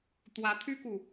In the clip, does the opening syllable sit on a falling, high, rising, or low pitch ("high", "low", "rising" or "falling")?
rising